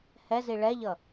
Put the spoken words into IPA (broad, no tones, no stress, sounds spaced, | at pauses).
h ɛ z i ɭ ɛ ʎ ʌ